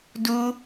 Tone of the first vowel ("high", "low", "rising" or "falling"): high